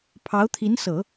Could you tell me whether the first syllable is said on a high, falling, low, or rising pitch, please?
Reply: rising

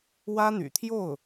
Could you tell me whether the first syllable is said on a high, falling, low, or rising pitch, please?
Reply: high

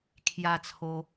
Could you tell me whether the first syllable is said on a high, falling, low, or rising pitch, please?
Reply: high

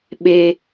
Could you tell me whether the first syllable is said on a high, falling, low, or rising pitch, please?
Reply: low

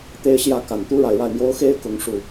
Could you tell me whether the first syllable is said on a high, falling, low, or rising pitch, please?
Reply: high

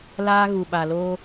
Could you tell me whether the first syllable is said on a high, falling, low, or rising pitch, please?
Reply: high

